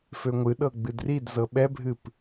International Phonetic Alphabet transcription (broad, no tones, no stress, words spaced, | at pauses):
føŋʷɨɗɤ ɡ͡bɨdridzɤ ɓɛbʱɨp